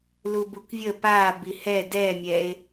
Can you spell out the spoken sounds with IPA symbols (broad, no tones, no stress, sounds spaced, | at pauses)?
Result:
l u b u k vʲ ə p a b i h ɛ d ɛ mʲ ɛ e̯